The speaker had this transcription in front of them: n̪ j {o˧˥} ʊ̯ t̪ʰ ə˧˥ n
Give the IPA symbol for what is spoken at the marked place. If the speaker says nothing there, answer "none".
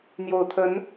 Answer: o˨˩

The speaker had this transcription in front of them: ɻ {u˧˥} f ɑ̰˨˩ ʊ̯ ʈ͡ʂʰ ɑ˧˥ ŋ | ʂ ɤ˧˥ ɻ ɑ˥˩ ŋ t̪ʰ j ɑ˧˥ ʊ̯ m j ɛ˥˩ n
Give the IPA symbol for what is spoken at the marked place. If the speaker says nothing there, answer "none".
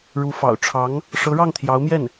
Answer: u˧˥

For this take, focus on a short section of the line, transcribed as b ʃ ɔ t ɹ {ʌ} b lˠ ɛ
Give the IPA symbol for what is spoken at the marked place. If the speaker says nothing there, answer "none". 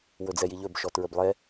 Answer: ə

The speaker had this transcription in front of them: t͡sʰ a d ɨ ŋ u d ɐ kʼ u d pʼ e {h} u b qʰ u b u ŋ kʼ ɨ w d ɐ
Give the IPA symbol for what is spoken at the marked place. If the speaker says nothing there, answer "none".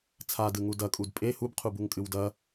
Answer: h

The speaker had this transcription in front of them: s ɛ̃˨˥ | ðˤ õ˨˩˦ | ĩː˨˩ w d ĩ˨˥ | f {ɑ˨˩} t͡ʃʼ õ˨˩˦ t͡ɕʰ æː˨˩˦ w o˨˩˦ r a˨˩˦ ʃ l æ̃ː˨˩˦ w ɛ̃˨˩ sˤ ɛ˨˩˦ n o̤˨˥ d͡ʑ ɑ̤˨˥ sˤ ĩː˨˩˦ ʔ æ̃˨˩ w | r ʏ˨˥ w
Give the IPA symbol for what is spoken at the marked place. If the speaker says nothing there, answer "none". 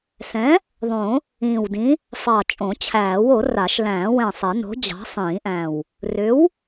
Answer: ɑ˨˩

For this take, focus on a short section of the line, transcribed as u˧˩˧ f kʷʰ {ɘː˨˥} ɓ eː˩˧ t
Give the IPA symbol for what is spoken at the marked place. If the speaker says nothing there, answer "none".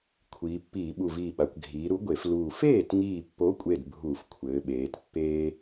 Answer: ɘː˩˧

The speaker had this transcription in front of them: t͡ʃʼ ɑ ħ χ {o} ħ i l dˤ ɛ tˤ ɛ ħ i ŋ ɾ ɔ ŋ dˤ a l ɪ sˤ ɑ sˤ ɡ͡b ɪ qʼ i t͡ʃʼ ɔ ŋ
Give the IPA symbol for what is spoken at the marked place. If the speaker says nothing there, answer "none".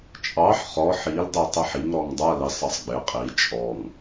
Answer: ɔ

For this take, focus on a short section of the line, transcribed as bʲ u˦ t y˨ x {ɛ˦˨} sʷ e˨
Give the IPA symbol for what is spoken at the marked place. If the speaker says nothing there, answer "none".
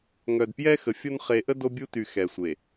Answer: ɛ˨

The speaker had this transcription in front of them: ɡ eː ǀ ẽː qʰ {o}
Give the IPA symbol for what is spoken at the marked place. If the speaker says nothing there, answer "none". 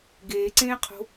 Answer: o̤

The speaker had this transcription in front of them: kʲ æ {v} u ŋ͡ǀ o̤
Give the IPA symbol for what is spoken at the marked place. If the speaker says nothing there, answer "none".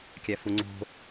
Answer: f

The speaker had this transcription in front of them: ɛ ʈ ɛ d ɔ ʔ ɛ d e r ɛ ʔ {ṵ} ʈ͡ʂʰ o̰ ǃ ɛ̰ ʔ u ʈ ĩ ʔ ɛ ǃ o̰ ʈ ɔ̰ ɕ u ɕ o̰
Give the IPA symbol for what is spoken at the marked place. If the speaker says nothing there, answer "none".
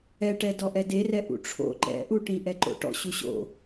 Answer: ṵ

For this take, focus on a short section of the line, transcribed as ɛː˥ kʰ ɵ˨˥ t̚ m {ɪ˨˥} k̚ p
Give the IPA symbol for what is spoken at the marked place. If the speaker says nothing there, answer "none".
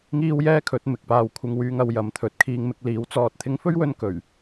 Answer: ɪ˨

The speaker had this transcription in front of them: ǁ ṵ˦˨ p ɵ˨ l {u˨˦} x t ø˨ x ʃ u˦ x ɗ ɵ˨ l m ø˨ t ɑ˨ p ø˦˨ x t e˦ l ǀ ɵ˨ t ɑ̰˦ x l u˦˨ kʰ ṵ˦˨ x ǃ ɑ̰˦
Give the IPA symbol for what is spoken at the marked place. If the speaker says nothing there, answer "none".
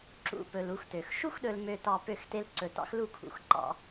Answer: u˨˦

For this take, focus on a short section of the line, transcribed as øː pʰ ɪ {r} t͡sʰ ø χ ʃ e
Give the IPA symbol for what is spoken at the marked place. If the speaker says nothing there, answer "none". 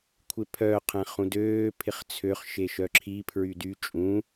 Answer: χ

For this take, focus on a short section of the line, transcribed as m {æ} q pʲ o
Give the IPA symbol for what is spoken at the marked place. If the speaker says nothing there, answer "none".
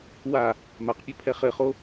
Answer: a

